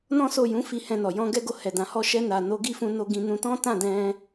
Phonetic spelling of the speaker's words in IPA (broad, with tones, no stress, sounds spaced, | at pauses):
n ɔ̃˦ s o˦˨ j ũ˨˦ f i˧ h ɛ̃˧ n ɔ˨ j ɔ̃˧ ɡ ɛ˦ ɡ o˦˨ h ɛ˨ d ã˨ h ɔ˧ ʃ ɛ˧ n a˨ n o˨˦ ɡ i˦˨ f ũ˧ n o˧ ɡ ĩ˧ n ũ˧ t ɔ̃˦ t ã˦˨ d ɛ̃˧